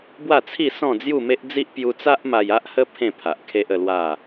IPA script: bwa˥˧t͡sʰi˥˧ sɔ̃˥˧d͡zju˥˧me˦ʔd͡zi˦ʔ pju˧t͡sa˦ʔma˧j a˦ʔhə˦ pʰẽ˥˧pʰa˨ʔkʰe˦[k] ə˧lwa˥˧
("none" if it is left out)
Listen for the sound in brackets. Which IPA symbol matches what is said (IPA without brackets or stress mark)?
ʔ